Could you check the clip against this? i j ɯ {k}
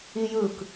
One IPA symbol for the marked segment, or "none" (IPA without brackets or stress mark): k